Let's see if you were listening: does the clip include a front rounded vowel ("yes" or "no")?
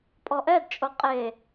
no